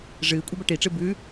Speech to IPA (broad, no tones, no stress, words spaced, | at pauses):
ʐɨːkʷʼebɐ ʈiʈ͡ʂɨ bʉ